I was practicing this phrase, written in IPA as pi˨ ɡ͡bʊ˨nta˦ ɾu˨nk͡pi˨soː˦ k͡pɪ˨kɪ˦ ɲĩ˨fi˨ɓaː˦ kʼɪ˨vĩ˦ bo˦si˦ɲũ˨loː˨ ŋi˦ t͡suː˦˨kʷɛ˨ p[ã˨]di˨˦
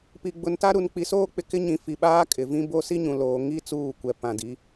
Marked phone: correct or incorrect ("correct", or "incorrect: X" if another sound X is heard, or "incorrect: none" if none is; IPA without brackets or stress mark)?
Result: correct